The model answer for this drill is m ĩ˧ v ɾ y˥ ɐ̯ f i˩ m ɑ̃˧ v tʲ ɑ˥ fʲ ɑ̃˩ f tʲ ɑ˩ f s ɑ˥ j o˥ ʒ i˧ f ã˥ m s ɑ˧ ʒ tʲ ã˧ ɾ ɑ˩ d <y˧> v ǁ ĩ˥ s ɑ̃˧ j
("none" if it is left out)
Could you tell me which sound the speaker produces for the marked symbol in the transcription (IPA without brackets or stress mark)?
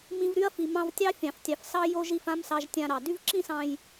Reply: y˥